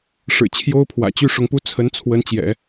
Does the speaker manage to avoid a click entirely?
yes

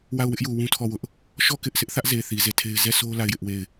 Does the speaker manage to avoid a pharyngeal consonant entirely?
yes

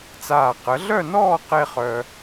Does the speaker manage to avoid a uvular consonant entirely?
no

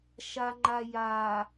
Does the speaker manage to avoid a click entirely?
no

